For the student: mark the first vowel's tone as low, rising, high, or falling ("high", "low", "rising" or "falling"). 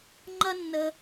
high